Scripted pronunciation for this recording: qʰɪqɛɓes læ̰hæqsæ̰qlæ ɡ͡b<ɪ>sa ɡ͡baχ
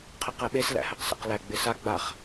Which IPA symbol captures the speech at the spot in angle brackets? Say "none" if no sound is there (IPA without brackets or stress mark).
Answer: ɪ